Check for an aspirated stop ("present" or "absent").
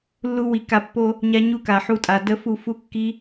absent